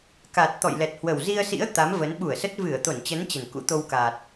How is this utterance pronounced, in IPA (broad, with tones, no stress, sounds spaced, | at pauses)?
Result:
k a˨˩ t̚ t̪ ɔ̰˧˨ j l ɛ˨˩ t̚ h w ə˨˩ w z i˧ ə̯ s ḭ˧˥ ə̯ t̪ a˨˦ m v ə˨˦ n ɓ u˧˩ ə̯ s ə˦˥ t̚ v ɨ˧˩ ə̯ t̪ o˧˩ n t͡ɕ ə˨˦ n t͡ɕ ə˨˩ n k ṵ˧˥ t̪ o˧ w k a˨˩ t̚